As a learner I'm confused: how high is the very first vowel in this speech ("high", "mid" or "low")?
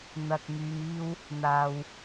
low